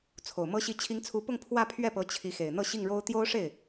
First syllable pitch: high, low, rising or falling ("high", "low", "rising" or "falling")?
low